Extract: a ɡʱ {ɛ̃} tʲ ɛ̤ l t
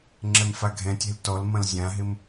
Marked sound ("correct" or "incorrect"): correct